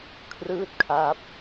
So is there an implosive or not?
no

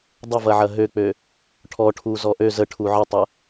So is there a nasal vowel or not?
no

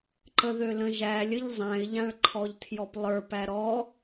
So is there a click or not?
yes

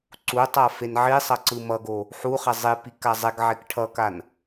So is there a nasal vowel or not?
no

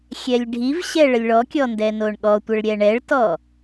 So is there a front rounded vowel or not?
no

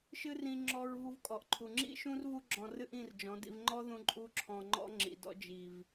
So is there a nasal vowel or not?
yes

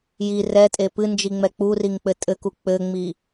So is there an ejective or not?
yes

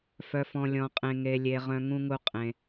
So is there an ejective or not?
yes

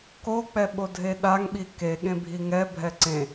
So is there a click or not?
yes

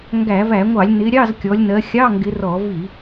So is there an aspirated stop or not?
no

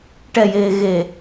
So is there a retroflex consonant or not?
yes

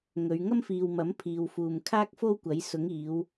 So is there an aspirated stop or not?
yes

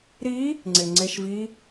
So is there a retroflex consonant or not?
no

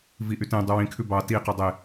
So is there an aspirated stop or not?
yes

